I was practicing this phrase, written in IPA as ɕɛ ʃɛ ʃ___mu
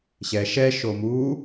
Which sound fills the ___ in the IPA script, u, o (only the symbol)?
o